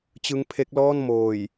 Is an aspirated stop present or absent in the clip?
present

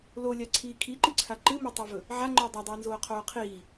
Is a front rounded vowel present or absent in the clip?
absent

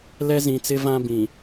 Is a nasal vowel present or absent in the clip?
present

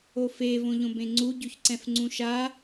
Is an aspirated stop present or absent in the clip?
absent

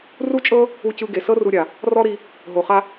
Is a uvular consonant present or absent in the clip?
present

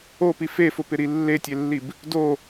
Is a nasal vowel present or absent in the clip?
absent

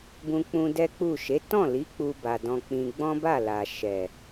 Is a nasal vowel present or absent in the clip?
present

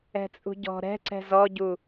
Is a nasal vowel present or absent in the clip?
absent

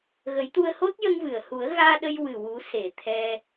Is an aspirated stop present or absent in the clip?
present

